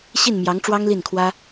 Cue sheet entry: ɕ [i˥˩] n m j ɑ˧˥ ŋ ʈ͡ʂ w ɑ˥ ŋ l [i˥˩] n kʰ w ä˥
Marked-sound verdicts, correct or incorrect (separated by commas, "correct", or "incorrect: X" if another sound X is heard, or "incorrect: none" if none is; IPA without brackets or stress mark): correct, correct